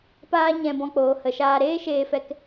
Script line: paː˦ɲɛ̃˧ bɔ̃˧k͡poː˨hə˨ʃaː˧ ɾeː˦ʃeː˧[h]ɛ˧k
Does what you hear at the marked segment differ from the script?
yes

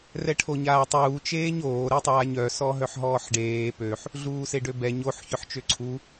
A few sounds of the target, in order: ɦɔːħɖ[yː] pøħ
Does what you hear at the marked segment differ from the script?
yes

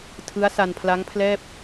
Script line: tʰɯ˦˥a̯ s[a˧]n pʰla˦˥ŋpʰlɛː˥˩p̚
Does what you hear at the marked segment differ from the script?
no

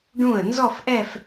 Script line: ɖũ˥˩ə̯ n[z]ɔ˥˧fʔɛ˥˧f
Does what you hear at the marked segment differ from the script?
no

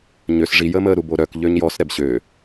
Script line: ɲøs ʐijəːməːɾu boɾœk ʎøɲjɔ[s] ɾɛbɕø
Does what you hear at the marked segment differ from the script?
no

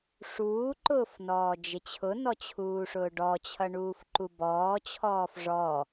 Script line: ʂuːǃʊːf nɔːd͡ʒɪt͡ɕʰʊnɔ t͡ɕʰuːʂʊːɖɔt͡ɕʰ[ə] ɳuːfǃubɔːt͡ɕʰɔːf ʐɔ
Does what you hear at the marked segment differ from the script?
yes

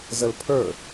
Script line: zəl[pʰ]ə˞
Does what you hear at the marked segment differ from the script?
no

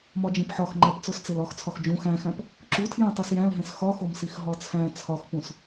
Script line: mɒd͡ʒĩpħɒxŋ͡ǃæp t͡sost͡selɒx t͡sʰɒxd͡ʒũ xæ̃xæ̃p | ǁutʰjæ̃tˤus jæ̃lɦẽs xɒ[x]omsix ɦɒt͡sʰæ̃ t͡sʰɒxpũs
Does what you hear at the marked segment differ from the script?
no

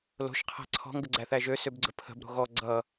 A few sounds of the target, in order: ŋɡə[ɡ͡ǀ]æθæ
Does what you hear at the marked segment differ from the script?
no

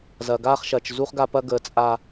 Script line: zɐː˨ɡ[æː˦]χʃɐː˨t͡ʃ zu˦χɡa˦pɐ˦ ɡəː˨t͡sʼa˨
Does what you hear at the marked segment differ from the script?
yes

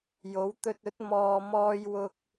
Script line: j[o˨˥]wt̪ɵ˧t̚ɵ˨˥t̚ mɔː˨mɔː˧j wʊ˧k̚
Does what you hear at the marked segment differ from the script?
no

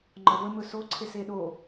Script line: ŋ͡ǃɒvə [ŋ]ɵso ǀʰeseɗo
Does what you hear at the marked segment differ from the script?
yes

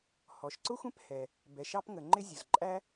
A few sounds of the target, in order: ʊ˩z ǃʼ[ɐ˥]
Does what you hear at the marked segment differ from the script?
yes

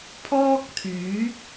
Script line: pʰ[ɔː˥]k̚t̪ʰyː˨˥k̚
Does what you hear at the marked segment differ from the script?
no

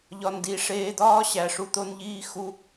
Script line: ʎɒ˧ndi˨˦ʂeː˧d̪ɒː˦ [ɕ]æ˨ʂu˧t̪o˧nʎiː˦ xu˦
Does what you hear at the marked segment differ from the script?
no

